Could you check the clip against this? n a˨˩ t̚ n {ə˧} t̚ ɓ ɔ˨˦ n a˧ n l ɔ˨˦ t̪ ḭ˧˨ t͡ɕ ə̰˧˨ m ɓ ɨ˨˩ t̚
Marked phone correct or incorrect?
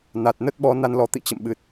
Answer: incorrect